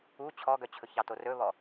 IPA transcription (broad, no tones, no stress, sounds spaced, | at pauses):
u t͡ɕʰ ɔ ɡ œ t͡ɕʰ ɵ ç ɑ t o r ɵ β ɔ